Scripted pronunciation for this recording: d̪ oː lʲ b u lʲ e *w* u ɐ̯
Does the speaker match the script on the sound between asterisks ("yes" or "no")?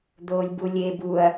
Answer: no